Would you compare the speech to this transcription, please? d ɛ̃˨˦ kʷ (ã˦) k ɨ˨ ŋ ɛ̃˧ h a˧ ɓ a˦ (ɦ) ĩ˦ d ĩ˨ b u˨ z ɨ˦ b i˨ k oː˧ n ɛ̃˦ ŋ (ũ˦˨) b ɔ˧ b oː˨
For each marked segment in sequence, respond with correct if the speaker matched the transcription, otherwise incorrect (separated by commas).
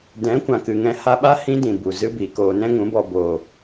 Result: incorrect, incorrect, incorrect